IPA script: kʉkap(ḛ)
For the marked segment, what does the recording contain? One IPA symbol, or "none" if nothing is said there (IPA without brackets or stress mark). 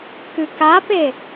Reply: e